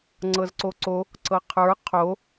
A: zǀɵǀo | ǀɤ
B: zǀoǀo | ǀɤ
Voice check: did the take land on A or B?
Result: B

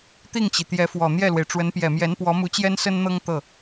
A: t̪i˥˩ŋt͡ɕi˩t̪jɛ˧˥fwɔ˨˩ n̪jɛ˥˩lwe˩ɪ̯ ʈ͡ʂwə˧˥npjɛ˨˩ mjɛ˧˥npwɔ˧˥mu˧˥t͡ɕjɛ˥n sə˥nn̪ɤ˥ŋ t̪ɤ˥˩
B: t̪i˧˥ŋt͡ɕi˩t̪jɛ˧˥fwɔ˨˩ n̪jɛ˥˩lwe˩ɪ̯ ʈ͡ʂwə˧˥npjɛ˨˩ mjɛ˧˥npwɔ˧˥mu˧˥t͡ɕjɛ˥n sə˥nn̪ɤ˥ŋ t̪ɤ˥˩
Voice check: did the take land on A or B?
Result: A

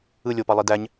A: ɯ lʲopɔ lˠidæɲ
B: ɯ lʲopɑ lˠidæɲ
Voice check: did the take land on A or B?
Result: B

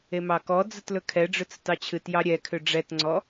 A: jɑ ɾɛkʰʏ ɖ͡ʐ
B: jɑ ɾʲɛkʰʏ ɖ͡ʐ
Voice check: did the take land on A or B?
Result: B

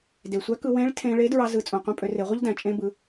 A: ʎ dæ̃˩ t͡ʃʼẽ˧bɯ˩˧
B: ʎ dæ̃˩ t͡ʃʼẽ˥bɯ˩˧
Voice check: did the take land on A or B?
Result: A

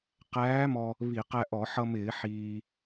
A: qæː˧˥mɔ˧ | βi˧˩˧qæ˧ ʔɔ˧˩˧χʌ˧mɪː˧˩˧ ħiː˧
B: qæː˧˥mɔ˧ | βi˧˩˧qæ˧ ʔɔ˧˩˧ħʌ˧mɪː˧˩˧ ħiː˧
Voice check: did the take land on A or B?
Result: B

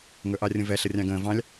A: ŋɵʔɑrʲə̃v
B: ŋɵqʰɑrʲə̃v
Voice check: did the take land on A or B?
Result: A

